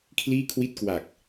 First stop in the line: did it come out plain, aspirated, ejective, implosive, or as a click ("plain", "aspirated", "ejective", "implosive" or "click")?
aspirated